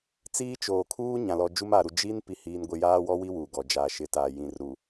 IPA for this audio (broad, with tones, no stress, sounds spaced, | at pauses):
t͡s iː˦ t͡ʃ oː˨ kʰ uː˦ ɲ ã˨ l ɔ˨ d͡ʒ u˦ m aː˨ ɾ u˨ d͡ʒ iː˦ n p i˨ h iː˨ n ɡʷ ɪ˨ j aː˦ w ɔ˦ w i˦ w uː˨ ɡ ɔ˨ d͡ʒ aː˨ ʃ ɪ˨ t aː˨ j ĩ˨ r ɾ u˨